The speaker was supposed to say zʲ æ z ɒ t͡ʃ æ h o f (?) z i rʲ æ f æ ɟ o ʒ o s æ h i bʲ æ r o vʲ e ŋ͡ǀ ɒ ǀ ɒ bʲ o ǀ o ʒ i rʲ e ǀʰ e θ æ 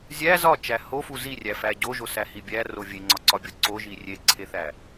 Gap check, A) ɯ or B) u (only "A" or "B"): B